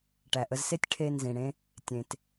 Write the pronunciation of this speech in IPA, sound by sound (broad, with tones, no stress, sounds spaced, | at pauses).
ʈ æ˨ ʔ ə˧ z s e˦ tʲ ʈʰ e˧ n z ĩ˨ ɽ ẽ˦ | tʲ ẽ˨ t